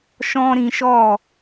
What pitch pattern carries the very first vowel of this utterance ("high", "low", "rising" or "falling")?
high